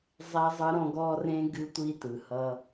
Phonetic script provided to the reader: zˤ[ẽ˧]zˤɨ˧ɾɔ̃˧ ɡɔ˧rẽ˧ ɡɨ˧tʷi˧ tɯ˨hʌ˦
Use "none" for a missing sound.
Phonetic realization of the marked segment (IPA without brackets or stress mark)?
e˧